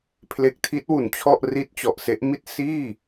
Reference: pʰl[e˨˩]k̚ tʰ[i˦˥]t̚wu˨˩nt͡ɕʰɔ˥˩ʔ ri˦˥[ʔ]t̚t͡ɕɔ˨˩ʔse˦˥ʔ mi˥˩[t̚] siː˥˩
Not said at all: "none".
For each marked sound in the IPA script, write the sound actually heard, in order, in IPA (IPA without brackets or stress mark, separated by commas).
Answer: e˨˩, i˦˥, none, t̚